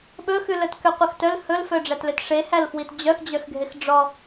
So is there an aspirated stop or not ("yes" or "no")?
no